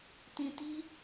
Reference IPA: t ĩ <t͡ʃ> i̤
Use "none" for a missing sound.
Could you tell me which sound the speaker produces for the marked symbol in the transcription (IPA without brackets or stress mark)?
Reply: t